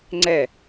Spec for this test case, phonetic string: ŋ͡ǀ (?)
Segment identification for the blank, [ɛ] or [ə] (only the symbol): ɛ